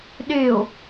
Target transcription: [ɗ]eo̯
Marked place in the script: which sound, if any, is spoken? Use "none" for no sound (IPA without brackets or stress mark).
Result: ɗ